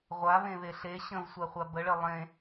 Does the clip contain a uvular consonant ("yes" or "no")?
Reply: yes